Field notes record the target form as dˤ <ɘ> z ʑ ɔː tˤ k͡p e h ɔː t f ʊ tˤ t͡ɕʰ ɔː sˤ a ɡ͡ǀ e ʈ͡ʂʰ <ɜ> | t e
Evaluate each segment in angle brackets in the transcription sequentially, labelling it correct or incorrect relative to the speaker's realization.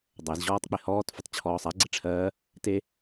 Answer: incorrect: ɛ, incorrect: ɜː

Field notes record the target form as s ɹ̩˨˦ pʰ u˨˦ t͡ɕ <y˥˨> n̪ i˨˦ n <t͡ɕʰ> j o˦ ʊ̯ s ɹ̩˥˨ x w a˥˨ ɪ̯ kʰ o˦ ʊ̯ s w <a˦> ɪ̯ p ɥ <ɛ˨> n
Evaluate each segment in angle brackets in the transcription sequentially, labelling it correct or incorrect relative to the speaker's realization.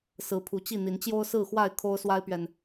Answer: incorrect: i˥˨, incorrect: t͡ɕ, correct, correct

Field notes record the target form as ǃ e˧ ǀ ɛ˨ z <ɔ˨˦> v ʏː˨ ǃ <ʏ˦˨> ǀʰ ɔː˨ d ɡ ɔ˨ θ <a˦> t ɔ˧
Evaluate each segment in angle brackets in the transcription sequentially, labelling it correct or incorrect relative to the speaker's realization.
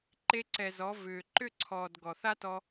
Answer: correct, correct, correct

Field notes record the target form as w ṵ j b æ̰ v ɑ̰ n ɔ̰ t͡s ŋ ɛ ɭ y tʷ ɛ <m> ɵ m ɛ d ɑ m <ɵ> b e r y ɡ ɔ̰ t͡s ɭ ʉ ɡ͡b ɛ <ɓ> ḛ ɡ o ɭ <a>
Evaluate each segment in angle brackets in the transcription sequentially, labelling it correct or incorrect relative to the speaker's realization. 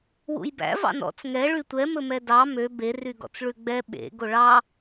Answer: correct, incorrect: ø, correct, incorrect: ɑ

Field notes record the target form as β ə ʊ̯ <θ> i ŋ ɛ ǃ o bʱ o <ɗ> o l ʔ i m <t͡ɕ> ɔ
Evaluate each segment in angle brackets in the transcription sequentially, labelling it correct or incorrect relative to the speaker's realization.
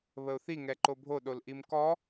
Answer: correct, correct, incorrect: k

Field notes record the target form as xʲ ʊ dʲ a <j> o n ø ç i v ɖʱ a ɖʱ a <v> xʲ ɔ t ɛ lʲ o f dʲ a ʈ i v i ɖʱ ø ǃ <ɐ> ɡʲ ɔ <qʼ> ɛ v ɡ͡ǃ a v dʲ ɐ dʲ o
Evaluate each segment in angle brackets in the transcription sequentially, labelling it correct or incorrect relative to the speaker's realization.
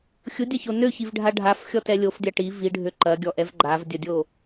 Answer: incorrect: ç, incorrect: f, correct, incorrect: ʔ

